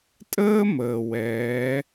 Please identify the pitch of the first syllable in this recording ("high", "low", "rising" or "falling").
high